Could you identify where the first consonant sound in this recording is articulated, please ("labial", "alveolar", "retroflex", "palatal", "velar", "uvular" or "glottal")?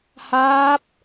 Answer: glottal